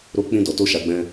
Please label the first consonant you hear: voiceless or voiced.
voiced